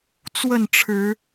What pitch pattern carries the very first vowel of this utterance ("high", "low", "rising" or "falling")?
falling